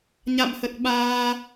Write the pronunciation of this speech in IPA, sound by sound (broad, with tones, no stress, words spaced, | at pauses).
ɲa̰˧˨mhə˨˩t̚ɓaː˧